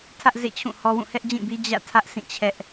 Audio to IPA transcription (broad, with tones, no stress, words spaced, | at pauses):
tʰä˦ʔzḛ˦˨t͡ɕʰũ˦˨ hɔ˦ wũ˦˨hɛ˦ʔd͡ʑĩ˦˨bi˦ d͡ʑä̰˦˨tʰä˦ʔ sʰĩ˦˨t͡ɕʰɛ˦ʔ